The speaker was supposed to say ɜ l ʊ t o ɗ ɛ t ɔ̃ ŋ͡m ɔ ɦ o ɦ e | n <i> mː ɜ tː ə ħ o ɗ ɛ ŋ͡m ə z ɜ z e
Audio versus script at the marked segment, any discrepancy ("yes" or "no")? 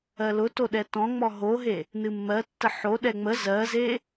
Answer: yes